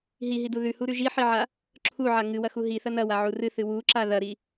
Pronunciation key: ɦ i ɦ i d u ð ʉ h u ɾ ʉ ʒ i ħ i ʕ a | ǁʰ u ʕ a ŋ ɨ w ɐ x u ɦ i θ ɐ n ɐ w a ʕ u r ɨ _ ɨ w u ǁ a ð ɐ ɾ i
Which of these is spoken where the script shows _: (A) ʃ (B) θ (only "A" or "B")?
B